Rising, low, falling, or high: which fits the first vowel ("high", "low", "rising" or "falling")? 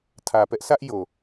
low